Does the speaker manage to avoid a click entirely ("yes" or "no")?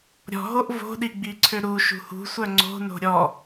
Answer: no